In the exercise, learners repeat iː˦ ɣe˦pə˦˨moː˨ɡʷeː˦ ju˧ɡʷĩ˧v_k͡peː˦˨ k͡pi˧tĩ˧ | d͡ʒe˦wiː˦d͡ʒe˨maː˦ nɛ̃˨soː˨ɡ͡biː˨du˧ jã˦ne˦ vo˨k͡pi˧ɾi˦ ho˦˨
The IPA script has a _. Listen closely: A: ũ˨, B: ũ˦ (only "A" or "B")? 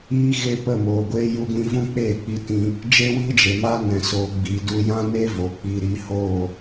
B